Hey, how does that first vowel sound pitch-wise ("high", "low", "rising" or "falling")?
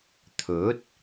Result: rising